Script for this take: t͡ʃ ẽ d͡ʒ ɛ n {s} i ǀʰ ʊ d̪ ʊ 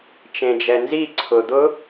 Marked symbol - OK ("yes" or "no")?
no